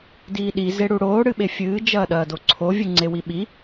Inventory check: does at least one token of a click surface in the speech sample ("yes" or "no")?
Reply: yes